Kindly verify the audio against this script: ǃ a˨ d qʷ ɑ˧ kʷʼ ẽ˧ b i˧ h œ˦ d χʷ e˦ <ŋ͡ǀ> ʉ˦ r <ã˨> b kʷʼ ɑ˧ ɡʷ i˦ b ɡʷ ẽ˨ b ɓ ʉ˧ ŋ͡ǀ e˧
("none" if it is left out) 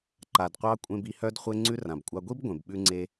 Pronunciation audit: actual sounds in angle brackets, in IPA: ŋ͡ǀ, ã˨

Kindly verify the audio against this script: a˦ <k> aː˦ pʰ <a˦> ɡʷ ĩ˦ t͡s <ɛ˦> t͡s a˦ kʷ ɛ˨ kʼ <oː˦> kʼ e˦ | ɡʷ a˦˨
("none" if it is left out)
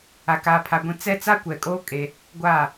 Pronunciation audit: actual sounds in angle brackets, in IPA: k, a˦, ɛ˦, oː˦

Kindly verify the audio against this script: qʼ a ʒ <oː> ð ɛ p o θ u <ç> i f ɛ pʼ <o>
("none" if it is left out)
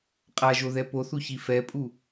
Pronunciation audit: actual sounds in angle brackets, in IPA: o, ç, u

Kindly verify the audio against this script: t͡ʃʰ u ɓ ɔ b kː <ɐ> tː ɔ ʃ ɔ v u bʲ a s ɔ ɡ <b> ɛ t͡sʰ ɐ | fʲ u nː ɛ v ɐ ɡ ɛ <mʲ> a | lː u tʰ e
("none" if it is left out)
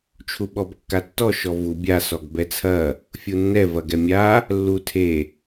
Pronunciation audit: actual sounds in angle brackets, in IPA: a, b, mʲ

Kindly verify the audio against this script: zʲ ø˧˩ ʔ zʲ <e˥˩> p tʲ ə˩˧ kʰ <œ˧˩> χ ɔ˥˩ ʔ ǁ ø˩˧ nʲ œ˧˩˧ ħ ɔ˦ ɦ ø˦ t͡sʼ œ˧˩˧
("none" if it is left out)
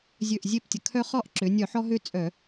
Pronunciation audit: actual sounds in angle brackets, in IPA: e˥˩, œ˦

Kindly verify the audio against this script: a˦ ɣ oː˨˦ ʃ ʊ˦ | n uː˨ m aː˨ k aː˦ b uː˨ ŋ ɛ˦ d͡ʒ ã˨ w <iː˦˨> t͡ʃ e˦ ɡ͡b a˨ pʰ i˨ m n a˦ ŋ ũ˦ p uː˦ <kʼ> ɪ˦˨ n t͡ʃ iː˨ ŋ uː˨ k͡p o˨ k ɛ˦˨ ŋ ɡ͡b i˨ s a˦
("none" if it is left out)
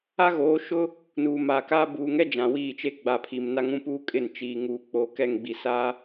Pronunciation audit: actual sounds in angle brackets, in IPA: iː˦˨, kʼ

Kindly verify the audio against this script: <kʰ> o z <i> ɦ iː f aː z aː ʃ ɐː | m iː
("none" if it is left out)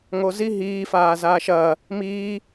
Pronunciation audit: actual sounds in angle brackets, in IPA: ŋ, i

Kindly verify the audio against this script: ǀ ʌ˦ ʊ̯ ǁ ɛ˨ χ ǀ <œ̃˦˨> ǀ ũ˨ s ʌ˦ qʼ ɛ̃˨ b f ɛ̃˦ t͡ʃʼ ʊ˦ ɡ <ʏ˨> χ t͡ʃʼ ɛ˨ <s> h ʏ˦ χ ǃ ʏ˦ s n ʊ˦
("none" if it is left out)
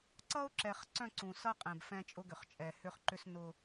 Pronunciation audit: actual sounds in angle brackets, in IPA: œ̃˦˨, ʏ˨, none

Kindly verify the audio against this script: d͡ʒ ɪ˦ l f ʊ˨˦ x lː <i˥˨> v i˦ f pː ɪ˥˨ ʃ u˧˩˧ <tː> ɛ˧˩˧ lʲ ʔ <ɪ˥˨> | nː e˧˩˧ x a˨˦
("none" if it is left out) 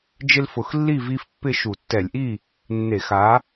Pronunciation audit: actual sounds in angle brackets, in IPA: i˥˨, tː, i˥˨

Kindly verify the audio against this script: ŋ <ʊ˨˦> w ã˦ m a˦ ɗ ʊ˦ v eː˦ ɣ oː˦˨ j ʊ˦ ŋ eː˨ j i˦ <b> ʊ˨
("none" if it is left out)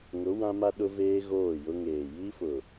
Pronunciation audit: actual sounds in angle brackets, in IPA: ʊ˨˦, f

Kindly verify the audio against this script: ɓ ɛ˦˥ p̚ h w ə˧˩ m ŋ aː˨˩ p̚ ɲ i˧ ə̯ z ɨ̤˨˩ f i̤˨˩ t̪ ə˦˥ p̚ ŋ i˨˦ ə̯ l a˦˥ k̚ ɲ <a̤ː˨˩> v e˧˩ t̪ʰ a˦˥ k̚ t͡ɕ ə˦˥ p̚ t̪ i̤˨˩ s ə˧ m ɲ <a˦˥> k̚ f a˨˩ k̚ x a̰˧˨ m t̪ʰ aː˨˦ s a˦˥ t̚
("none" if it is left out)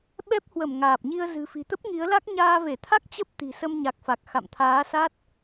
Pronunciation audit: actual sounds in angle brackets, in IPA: aː˧, a˨˩

